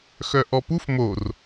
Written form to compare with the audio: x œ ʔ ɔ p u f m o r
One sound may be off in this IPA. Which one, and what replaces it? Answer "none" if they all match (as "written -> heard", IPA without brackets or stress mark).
none